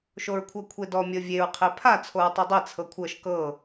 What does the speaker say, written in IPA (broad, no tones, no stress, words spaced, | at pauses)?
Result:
ʃoɹkʷʰɤkʷʰedɔ mʲɤvʲeɹ qʰepʰa t͡sʰoɹtˤedˤe t͡sʰɤkʷʰɤʃ kɤ